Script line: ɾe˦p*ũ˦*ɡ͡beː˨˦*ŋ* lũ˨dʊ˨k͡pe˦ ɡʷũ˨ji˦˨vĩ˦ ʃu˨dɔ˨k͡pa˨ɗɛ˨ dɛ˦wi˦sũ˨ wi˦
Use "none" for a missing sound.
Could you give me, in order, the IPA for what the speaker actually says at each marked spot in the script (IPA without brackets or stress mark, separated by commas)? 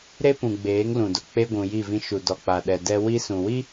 ũ˨, ŋ